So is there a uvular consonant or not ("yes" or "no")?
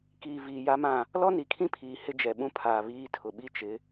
no